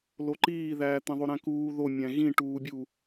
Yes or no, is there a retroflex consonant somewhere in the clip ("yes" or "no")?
yes